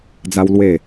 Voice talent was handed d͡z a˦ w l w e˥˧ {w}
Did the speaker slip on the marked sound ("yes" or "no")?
yes